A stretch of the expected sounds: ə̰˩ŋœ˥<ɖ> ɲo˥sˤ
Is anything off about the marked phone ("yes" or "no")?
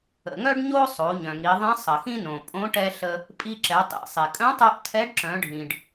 no